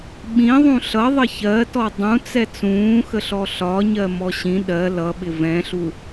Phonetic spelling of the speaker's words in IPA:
ɓĩðˤũ ɬʌðˤə çɜtɔ dˤũt͡sɛ t͡sũːxəɬɔ ɬɒɲɜmɔ ɕĩ ɗɜ lʌɓɪ vɛ̃ɬu

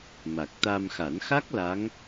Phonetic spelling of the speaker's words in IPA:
ma˨˩k̚t̪a˧mxa˨˩˦n xa˦˥k̚ la˧˥ŋ

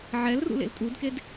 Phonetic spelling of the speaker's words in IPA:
ʕɛl rṵlḛltʼudked

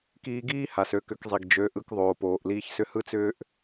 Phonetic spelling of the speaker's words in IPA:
kiː˧ɡiː˦ ha˨sø˧kʏ˨˦kzˤi˨ɡ d͡ʒø˨˦ʔɯ˧k ðˤoː˨poː˨ʔ liː˧çsʏ˧ hɯ˦t͡sʏː˦ʔ

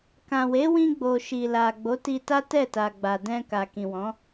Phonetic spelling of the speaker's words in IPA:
kã˨we˨˦wĩ˧ɡ͡bo˨ ʃi˨la˨ ɡ͡bo˨˦ti˧ta˦ tɛ˦˨ta˨ɡ͡ba˨dɛ̃˧ ka˨kĩ˨wɔ̃˨˦

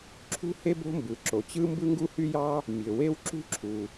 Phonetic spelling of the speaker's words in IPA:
ǁʰṳ˥he˥b o̤˥mbɯ˩ǁo˩t͡ɕɯ˥ mbɯ˥ŋɡu˥hy˥jɑ˥ | mʲø˩we˥wǁṳ˥ǁʰu˩

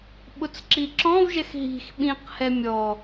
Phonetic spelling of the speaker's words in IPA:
ɓʊt͡sǁiǁɔ̃vʒɛx ɦi̤x ɓĩqhɛ mʲɔ

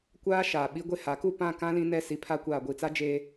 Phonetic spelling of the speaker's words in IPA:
kʷaː˦ ʃaː˨ɓi˦ɡʷe˦ha˨˦ ku˦˨pã˦˨kã˦ lĩ˦nɛ˦ si˨pʰa˦ kʷaː˨ɡʷi˨t͡sa˦ d͡ʒeː˦

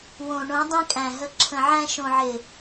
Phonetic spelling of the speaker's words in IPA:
wõ˨ ɳõ˨˦dˤĩ˧kʼæ̃˨ ɦə˨ǁʰə̃˨ ʕæ̃˧ ʃõ˨ʕɪ˨

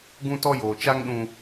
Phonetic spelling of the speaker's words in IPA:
ɡũ˦tɔ˦ joː˨t͡ʃa˦ŋ ɗũ˦

